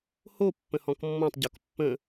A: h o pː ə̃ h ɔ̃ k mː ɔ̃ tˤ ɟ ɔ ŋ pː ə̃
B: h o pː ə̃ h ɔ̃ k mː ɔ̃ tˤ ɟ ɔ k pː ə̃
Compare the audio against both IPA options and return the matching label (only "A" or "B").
B